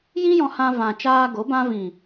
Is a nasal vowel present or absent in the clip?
present